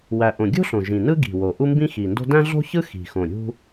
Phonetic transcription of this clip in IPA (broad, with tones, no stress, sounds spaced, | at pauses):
w æ˨˩ ʔ õ˨˩ ɡʲ o̤˥ ɬ õ˨˩ ʒ ĩ˨˩ n ɯ˥ ɡ i̤˨˩ w o˨˩ ʔ u˥ m b ĩ˥ x i˨˩ n d o̤˥ d æ̃˥ ɮ o̤˥ ç ɯ˥ x i̤˨˩ x õ˨˩ ɾʲ ṳ˥